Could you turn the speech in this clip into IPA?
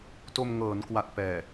to˧mŋɤː˩˦nkwa˨˩t̚ pɛː˨˩

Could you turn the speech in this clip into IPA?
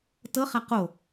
tɤχa qo

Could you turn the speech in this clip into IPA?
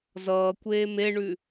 zʌːkʷeː meɳʉ

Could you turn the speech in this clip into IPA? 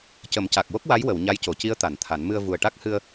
cə˨˩˦mca˨˩k̚wo˦˥k̚ wa˧˥j wə˨˩˨w ɲa˧˥jco˨˩˨ci˧˥ə̯ t̪a˨˩˨nt̪ʰa˨˩˦n mɨ˧ə̯ vu˨˩ə̯ʈa˦˥k̚ hɨ˧ə̯

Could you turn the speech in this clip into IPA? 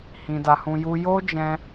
hĩ˧da˧hũ˧ ju˧jo˦d͡ʒɛ̃˧

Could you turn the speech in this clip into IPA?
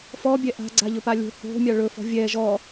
fɔbʲɛ ʔa̤ɡ͡ǀaʎɵ palʲo̤ ho̤ mʲaɭɵfɔ̤ vʲɛ ʒɔ

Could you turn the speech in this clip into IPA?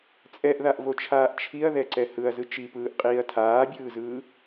t͡sʼɛʔðaʔvot͡ʃʰaːʔ t͡ʃʰiɐ̯ðɛǀɛ hɯɐ̯zɯ t͡ʃipɯːʔqʼiːɐ̯ tʰaːbʲɯːzɯː

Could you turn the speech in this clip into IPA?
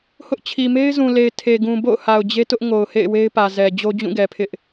hʊ˦ʔt͡ɕʰi˨ me˦ɪ̯zũ˨le˨ɪ̯ tʰe˨ ɡũ˨bo̰˦˨ʊ̯ha˨ʊ̯ d͡ʑe˦tʊ˦ʔ ŋo˨ʊ̯hḛ˦˨ɪ̯ we˦ɪ̯pä˨zɛ˨ d͡ʑo˦d͡ʑũ˦˨ɡɛ˨pʰɪ˦ʔ

